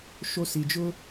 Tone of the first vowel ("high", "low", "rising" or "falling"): high